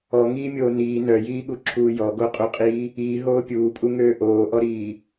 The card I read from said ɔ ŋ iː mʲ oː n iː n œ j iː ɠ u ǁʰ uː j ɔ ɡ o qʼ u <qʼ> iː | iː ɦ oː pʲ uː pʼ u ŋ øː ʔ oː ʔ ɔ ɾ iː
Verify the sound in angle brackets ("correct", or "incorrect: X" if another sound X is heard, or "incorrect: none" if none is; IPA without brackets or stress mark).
correct